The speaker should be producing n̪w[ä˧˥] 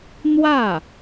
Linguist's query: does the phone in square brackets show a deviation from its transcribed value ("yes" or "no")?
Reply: yes